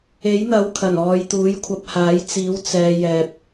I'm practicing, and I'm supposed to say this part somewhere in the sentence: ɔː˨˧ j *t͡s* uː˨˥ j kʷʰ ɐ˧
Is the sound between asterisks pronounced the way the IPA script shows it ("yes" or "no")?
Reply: no